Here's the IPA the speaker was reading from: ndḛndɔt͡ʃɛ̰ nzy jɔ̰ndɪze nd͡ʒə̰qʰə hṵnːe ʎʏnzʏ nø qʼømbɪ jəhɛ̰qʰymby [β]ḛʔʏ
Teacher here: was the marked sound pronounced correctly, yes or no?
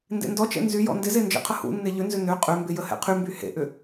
no